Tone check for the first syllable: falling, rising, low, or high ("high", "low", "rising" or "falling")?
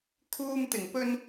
high